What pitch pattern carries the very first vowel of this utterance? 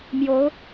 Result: rising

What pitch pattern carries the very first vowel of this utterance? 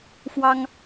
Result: high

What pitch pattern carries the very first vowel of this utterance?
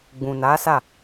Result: low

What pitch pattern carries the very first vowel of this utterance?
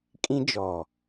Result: high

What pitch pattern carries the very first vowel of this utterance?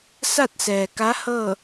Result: falling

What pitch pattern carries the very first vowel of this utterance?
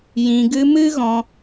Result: low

